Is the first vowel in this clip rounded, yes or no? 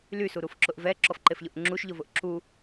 yes